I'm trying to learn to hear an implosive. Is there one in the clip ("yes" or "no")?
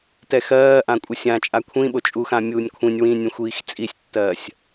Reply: yes